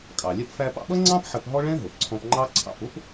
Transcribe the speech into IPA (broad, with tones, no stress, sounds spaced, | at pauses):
kʼ ɑ˩ lʲ ɛ˧ p f æ˧ p ɑ̰˧ ɓ ʌ˥ ŋ͡ǀ ɑ̃˥ p ħ ə˧ p ɦ ɔ˥ ɭ ɛ̃˥ ɦ ʊ˩ p ǀʰ ɔ̃˧ p ŋ͡ǃ ɑ˥ ǀʰ ɑ̰˧ p ʊ˥ p